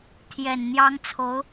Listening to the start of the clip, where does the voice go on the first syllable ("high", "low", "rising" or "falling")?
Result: low